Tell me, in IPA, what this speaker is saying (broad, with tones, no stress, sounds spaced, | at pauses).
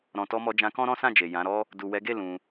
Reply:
ɾ ɔ̃˨ t ɔ˧ m ɔ˧ d͡ʒ ã˧ k ɔ̃˦ ɾ ɔ̃˦ s ã˦˨ d͡ʒ e˨ j ã˨˦ ɾ ɔ˦ | d u˨ w ɛ˨˦ ɡ e˦˨ l ũ˧